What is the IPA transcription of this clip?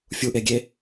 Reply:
fʲ u ʔ e ɡʲ e

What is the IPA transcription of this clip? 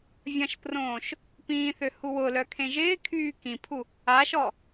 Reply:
vʲ ɐ̃ ʃ p r õː ʃ | p ĩː θ ø h u w ʊ l œ kʰ ẽ ʒ ɪː kʰ yː k ĩ pʰ u | a ʃ ɔ

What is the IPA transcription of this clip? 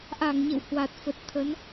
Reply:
ʔ a˧˩ ŋ ɲ ə̰˧˨ w h w a˨˩ t̚ f ə˨˩ t̚ t̪ʰ ə˨˦ n

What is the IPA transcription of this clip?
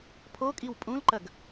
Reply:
pʰ o kʼ i w pʼ ũ l ǃ ɐ ɡ

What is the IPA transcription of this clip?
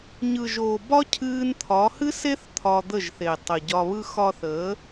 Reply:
ɲ ɯ˨ ʒ oː˨ b ɒ˦ cʰ ɨː˧ n t̪ʰ ɒ˨˦ h ɨ˦ s e˦ θ t̪ʰ ɒ˧ d̪ ə˦˨ ʒ θ e˨ tˤ ə˨ ɟ ɒ˧ β ɯ˦ x ɒ˧ θ əː˨˦

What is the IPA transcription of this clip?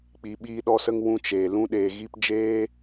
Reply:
k͡p i˧ ɓ iː˦ ɗ ɔ˦ s ə˦ ŋ w ũ˧ t͡ʃ eː˨ l ũ˧ ɗ eː˨ ɣ i˧ p d͡ʒ eː˦

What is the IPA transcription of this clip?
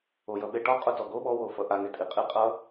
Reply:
o j ʌ ɓ e ʈ ɔ qʼ o t ɔ ɡ o ɓ ɔ w o f ʌ ʔ a ŋ e tʼ i qʼ i qʼ ʌ

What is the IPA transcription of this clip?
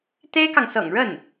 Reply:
t̪ e˥ ɪ̯ k ɑ˨ ŋ s ɤ̰˨˩ ŋ ɻ ə˥˩ n

